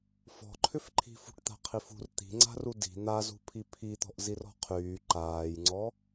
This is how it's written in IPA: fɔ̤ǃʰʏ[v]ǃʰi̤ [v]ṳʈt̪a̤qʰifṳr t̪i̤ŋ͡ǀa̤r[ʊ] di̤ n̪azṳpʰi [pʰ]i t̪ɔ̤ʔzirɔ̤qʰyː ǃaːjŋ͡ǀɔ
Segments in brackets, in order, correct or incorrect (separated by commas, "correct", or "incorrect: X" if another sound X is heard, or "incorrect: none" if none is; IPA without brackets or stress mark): incorrect: f, incorrect: f, incorrect: u, correct